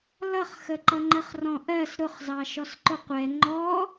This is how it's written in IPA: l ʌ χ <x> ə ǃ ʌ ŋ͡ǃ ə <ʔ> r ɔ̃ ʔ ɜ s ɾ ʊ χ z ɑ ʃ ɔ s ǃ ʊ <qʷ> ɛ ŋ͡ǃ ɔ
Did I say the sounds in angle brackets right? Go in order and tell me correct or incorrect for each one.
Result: correct, incorrect: χ, correct

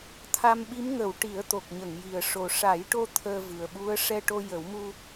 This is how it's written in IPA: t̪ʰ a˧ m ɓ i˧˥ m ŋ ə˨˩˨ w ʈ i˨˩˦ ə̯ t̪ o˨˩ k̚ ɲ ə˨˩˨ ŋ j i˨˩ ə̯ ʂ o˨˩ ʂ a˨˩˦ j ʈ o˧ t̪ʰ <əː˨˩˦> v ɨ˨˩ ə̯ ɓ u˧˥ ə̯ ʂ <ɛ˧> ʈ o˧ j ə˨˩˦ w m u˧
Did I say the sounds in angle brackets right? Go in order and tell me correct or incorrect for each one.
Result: incorrect: əː˧, correct

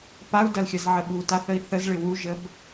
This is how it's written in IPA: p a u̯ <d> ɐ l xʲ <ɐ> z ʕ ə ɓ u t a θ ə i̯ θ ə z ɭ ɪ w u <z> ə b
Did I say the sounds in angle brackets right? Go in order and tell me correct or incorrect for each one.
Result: correct, correct, incorrect: ʒ

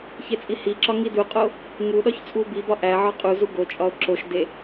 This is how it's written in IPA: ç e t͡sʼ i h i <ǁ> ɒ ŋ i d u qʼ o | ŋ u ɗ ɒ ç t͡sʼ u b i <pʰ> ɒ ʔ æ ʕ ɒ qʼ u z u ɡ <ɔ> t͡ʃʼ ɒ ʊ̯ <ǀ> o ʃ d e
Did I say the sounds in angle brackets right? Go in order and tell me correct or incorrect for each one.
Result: correct, incorrect: b, incorrect: o, incorrect: ǁ

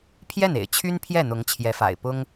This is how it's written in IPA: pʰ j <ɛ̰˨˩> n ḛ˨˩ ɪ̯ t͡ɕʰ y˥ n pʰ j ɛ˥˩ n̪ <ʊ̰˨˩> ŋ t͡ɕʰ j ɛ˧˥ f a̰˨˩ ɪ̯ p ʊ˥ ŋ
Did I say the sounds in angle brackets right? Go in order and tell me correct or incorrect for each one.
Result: incorrect: ɛ˥˩, incorrect: ʊ˧˥

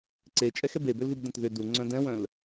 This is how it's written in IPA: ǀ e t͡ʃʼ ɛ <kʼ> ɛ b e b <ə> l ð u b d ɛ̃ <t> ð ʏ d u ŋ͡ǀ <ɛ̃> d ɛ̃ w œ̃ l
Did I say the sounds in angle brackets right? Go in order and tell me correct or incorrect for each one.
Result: incorrect: x, incorrect: ʏ, correct, incorrect: œ̃

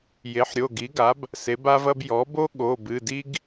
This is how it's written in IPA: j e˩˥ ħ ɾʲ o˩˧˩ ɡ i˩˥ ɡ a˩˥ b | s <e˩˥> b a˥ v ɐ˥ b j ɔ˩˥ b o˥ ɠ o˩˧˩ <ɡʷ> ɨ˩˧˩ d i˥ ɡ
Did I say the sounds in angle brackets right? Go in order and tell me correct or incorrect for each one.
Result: correct, incorrect: b

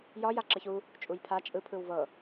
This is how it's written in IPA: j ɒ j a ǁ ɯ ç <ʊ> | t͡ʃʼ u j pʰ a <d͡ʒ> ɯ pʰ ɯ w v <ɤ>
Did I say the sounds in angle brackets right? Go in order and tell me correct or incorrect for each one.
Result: incorrect: u, incorrect: t͡ʃʼ, correct

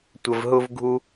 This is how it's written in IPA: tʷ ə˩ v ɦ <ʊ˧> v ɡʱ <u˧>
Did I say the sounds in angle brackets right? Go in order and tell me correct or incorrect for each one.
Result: correct, correct

